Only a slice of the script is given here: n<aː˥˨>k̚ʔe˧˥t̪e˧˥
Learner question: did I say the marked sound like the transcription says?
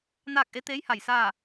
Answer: yes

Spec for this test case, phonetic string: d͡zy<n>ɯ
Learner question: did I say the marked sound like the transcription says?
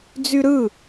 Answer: no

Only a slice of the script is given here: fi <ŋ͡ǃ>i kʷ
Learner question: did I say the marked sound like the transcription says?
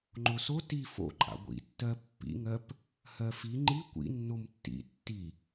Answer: yes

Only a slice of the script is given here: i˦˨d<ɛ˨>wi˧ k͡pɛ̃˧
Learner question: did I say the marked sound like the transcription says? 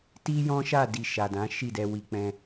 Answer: no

